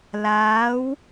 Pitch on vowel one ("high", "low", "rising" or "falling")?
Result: rising